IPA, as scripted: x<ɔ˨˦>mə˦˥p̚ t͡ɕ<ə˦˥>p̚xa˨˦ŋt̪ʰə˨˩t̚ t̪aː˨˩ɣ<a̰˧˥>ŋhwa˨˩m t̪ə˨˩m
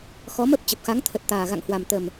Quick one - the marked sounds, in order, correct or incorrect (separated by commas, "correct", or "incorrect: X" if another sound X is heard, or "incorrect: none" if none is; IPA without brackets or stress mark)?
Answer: correct, incorrect: ə˨˩, incorrect: a̰˧˨